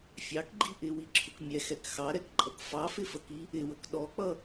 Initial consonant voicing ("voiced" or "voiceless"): voiceless